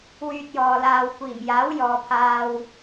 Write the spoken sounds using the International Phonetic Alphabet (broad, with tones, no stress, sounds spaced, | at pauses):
w yː˧ t̚ j ɔː˨ l aː˨ w kʷ iː˨˩ m j aː˨˥ w j ɔː˨ pʰ aː˧ w